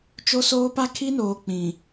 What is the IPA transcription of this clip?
t͡ʃ o˦ s oː˦ p a˦ kʰ i˦ n oː˨ k͡p ĩ˨

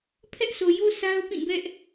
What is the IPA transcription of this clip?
pʰ ɛ˦ ʔ sʰ o˨ j o˦ sʰ a˦ ʊ̯ p ĩ˦˨ b ɛ˦ ʔ

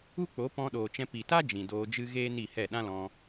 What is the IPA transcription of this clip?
u˦ k͡p o˨˦ p ɔ̃˧ ɗ oː˨ t͡ʃ ɛ̃˧ p i˨ t a˦ d͡ʒ ĩ˨ d oː˧ d͡ʒ ɨ˦ ɣ eː˦ n i˦˨ h ɛ˦˨ ɗ ã˦ l ɔ̃˧

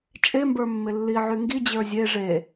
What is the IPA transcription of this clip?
t͡ʃʼ e m b ə˞ mː ɪ lː i ʕ y ŋ ɡ i d͡ʑ ə˞ zʲ e ʐ e

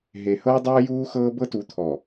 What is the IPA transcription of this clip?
ɦ e˨ h ɤː˦ dˤ oː˦ j uː˦ x ɤː˦ b ɤ˦ t u˨˦ t̪ʰ ɔ˨

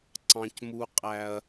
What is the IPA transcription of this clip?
ǀ ɑ̃˦ c m u˦ qʼ æ˦ ɐ̯

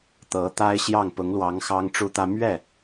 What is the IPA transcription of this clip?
t̪ ɤ˧˥ t̪ a˥ ɪ̯ ɕ j ɑ˥˩ ŋ p ʊ˧˥ ŋ l w ɑ˧˥ ŋ x ɑ˥ ŋ ʈ͡ʂ u˥ t̪ ä˥ m ɥ ɛ˥˩

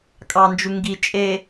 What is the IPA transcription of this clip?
kʼ ɑ n d͡ʒ u ŋ ɡ i t͡ʃʼ e

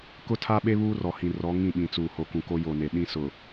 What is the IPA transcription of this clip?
k ʊ˦ tʰ a˦ ɓ e˦ β uː˦ r ɔ˨ h ĩ˨ r ɔ˨˦ ŋ ĩ˦˨ ɓ ĩ˨ t͡s uː˨ h o˨ k ũ˨ k o˦ j o˨ n e˨ ɗ ĩ˦ s ʊ˨

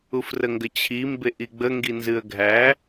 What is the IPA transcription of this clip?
u f r ə ŋ ɡ ə t͡ɕʰ i m b e ʔ i ɡ͡b ə ŋ ɡ i n z ɨ ə̯ ɡʱ æ

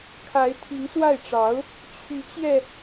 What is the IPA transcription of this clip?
kʰ a˧˥ ɪ̯ t̪ʰ i˧˥ ŋ s w a˥˩ ɪ̯ ʈ͡ʂ ɑ˧˥ ʊ̯ | t͡ɕʰ y˧˥ t͡ɕ j ɛ˧

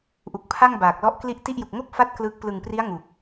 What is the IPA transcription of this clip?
ʔ u˨˩ k̚ pʰ a˥˩ ŋ b aː˨˩ k̚ l ɔ˥˩ ʔ k l i˥˩ ʔ t i˥˩ ʔ j u˨˩ k̚ ŋ o˥˩ k̚ f a˦˥ t̚ k l ɯ˦˥ k̚ p l ɯ˨˩ ŋ p r i˦˥ a̯ ŋ u˨˩ k̚

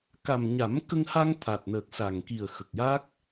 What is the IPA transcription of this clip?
k a˨˩ m ɲ a˨˩˦ m k ə˧ ŋ h a˧ ŋ t̪ʰ a˨˩ t̚ n əː˨˩ k̚ s a˨˩ ŋ k i˨˩ ə̯ x ə˨˩ k̚ j a˦˥ k̚

